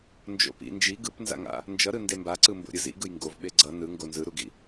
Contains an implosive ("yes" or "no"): yes